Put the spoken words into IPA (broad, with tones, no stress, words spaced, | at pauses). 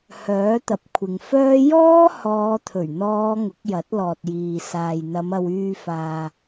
hœː˨˥t̪ɐ˨p̚kʷʰɪ˨ŋfœː˥ jɔː˥ hɔː˨˧t̪ʰɵ˨˩ɥn̪ɔː˨˧ ŋʊ˨˥k̚jɐ˨˥t̚lɔː˨t̚jiː˨ saː˨jn̪ɐ˨˧mɐ˧w yː˧faː˧